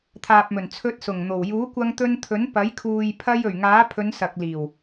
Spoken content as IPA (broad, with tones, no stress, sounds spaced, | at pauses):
t̪ʰ aː˨ p̚ m ɵ˨˩ n t͡sʰ ɵ˨˥ t̚ s ʊ˨˩ ŋ n̪ o˨˩ w j uː˨˥ kʷ ɐ˧ ŋ t̪ ɵ˧ n t̪ʰ ɵ˨˥ n p ɐ˨˥ j kʰ uː˨ j pʰ ɐ˧ j ɵ˨˩ ɥ ŋ aː˨˥ pʰ ɵ˨˧ n s ɐ˨ k̚ l iː˨˩ w